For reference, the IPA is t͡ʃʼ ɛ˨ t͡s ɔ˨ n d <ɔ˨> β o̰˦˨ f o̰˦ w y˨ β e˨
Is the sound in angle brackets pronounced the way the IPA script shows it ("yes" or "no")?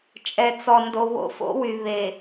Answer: no